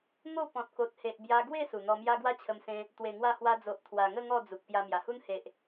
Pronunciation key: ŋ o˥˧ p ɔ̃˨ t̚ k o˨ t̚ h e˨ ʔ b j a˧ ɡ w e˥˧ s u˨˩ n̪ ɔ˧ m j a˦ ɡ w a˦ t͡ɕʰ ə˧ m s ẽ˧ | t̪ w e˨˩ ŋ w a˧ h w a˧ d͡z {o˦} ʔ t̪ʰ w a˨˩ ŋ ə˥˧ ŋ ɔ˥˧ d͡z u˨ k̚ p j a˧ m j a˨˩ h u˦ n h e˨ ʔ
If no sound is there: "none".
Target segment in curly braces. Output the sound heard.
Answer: o˨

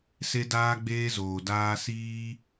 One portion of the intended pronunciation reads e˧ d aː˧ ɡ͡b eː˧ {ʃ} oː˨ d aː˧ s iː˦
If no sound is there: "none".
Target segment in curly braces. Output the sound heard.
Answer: z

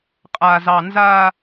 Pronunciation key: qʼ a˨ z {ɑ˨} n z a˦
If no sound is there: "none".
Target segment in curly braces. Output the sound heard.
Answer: ɑ˨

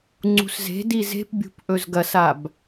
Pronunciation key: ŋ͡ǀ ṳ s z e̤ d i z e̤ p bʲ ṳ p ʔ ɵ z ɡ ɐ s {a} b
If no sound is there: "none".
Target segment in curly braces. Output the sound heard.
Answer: a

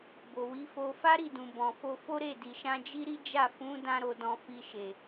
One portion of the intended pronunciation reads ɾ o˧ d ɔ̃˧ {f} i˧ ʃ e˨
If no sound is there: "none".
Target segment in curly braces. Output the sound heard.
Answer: f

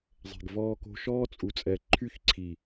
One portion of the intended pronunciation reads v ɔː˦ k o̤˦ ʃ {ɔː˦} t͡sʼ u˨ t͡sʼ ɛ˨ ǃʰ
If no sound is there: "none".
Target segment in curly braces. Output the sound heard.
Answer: ɔː˦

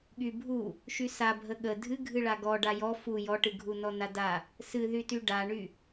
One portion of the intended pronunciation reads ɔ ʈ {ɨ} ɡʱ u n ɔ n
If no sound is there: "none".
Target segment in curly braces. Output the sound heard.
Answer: ɨ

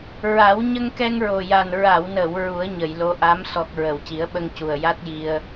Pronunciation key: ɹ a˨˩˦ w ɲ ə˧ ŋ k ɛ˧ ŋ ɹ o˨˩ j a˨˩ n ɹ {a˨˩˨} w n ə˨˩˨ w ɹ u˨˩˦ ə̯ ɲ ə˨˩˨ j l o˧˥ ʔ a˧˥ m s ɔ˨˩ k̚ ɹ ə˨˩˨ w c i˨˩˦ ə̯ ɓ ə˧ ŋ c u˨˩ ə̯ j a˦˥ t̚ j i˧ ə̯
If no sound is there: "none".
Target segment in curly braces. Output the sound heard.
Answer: a˨˩˨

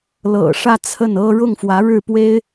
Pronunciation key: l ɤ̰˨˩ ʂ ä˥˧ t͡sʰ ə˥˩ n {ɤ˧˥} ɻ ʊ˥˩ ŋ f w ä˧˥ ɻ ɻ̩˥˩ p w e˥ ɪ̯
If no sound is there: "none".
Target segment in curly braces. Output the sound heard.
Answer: ɤ˥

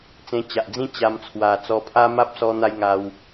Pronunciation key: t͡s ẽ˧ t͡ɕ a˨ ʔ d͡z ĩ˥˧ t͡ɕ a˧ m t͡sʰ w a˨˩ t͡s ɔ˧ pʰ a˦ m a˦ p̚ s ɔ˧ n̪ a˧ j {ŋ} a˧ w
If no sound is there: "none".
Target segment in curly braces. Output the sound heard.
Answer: ŋ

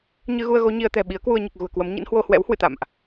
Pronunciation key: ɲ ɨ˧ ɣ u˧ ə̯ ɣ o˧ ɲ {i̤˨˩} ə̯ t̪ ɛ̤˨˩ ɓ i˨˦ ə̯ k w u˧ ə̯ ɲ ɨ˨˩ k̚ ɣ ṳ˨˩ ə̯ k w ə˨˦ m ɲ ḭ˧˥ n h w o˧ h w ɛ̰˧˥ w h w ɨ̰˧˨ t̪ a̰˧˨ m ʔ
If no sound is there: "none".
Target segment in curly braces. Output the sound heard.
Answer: i˧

